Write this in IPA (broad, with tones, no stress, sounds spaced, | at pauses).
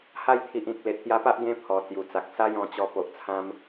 h a˥˧ j t̪ʰ i˨ ʔ ĩ˨ k̚ l e˨ t̚ t̪ j a˧ p a˦ ʔ ɡ ẽ˦ pʰ ɔ˨˩ t͡s j u˨˩ t͡s a˨ k̚ s a˦ j ɔ̃˧ t͡ɕ ɔ˧ p o˨ ʔ t͡sʰ ã˧ m